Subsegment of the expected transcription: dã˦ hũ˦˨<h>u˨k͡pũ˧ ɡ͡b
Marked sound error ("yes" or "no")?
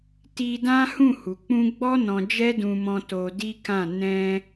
no